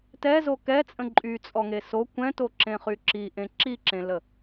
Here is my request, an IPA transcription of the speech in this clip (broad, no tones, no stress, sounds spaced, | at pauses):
t ɛ z o k ɛ t͡sʼ ə̃ ǃʼ y t͡sʼ ɔ ŋ e s o kʷ ɛ̃ t o ǁ ẽ χ y ǁ i ʔ ẽ ǁ i ǁ ẽ l ə